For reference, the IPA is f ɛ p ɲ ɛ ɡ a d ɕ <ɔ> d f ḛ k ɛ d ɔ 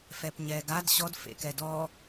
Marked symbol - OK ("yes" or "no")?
yes